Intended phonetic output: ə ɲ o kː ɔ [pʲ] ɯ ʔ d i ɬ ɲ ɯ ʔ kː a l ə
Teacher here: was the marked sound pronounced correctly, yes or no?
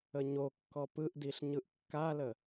no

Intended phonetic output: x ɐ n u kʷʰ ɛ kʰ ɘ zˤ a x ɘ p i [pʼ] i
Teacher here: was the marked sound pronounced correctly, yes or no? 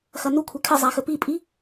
yes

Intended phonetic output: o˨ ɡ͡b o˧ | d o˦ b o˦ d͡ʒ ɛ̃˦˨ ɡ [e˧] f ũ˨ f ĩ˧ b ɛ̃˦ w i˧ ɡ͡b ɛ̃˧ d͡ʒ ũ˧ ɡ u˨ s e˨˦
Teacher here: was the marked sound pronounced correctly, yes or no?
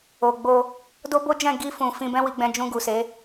no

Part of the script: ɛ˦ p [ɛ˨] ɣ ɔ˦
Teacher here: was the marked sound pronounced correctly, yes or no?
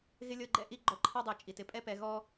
yes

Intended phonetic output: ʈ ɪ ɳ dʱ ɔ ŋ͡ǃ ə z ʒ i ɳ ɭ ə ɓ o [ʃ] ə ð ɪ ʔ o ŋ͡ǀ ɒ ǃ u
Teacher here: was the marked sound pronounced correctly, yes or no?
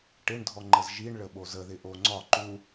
no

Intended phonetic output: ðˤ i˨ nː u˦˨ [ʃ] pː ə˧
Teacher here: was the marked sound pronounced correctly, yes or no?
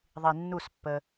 no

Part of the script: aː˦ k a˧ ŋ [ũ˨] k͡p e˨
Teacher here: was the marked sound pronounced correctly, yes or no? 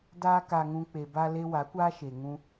no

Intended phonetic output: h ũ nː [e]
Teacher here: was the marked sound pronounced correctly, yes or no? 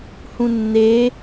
no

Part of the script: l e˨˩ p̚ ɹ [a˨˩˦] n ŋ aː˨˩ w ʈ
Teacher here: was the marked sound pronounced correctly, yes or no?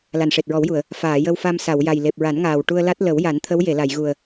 yes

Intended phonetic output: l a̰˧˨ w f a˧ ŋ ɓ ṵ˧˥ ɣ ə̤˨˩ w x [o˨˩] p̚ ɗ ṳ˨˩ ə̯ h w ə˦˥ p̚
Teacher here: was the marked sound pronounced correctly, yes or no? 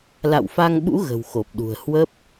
yes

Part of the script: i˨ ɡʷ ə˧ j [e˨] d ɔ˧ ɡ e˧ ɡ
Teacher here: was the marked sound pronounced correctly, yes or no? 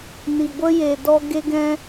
yes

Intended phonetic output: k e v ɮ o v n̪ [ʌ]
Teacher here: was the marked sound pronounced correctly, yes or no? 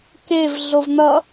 yes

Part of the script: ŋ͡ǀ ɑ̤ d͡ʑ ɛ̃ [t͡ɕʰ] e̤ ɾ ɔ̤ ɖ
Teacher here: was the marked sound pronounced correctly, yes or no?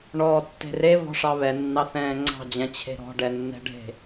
yes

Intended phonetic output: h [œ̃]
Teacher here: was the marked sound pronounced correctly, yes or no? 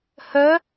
no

